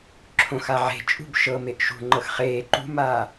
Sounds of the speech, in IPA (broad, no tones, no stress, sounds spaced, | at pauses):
ǁʰ õ x a ʕ e̤ t͡ʃʼ ṳ b ʃ ɤ m e ʔ ʃ ṳ ŋ͡ǃ ɤ x χ eː ǃ ṳ m aː